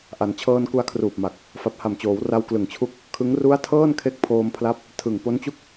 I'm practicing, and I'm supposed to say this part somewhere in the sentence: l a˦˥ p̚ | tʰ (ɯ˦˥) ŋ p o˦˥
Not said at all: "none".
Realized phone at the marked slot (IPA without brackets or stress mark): ɯ˨˩